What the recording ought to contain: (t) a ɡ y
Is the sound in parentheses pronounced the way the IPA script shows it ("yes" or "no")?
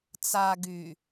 no